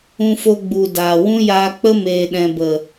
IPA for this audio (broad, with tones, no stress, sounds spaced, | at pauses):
ũ˧ f o˧ ɡ͡b u˨ d aː˨ w ũ˦ j aː˧ k͡p ə˦ m eː˨ ɗ ɛ̃˨ b ə˨